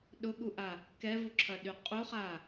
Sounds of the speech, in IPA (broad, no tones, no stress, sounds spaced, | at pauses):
ɗ ʊ ɠ u ʔ a | k ɛ v u ǁʰ ɐ ɗ y qʼ u χ a